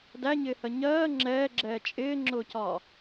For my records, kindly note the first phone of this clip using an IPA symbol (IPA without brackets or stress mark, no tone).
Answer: d